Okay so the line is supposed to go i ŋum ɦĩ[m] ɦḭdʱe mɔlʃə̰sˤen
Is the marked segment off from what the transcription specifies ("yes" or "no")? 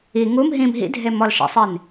no